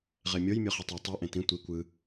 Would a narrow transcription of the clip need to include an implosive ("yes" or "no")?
no